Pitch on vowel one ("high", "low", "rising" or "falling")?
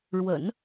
low